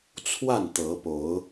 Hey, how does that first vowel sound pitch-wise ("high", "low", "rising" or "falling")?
falling